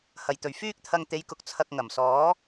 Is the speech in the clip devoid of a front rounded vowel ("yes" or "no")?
no